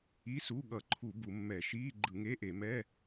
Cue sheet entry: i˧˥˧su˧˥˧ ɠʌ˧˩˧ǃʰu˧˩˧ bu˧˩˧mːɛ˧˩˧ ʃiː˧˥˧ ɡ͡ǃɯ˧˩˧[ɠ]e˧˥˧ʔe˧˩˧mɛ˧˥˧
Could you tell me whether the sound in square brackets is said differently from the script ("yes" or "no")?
yes